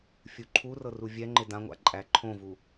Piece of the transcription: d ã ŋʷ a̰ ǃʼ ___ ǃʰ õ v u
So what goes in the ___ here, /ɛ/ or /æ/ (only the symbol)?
æ